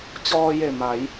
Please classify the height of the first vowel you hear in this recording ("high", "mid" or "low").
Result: mid